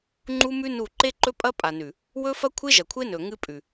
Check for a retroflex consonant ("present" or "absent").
absent